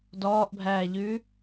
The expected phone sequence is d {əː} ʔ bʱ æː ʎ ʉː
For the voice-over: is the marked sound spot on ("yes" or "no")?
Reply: no